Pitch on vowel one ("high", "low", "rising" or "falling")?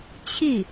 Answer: falling